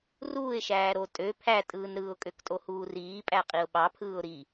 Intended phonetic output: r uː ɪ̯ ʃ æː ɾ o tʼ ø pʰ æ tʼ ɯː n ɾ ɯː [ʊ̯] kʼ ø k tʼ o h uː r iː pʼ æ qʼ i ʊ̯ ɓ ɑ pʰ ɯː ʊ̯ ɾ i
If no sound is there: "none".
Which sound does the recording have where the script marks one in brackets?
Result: ʊ̯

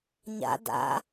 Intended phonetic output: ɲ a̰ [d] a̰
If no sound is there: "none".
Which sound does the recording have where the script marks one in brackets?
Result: d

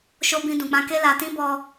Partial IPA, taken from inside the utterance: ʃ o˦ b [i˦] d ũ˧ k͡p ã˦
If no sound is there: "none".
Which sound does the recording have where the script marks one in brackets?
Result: ĩ˦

